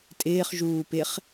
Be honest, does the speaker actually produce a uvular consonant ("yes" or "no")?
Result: yes